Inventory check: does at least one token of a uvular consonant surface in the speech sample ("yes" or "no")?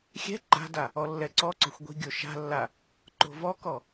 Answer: no